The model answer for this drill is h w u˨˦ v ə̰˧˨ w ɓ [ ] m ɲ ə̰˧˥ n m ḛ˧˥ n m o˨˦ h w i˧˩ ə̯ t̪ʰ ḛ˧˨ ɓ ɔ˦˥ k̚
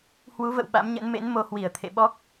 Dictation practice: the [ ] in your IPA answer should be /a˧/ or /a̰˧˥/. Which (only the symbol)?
a̰˧˥